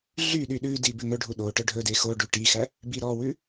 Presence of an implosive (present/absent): present